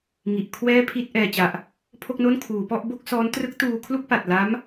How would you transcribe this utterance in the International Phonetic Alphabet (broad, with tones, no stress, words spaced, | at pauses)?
ŋi˨˩ʔ kʰwɛː˥˩pʰi˥˩t̚ ʔɛː˨˩t͡ɕa˨˩ʔ | pʰo˥˩k̚no˥˩nkʰuː˩˦ pɔ˥˩ʔ bo˥˩k̚sɔː˦˥n trɯ˦˥k̚tuː˧kʰlu˥˩k̚ pa˨˩t̚la˦˥m